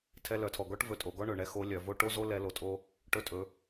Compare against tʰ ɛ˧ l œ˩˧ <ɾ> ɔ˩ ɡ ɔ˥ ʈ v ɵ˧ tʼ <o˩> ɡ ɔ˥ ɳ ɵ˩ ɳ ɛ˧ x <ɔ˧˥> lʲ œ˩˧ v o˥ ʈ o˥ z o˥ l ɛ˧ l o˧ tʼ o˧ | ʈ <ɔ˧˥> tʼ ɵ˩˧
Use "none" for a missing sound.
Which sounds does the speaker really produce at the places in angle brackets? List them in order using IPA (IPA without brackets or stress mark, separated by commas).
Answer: tʰ, o˩˧, o˧˥, ɵ˧˥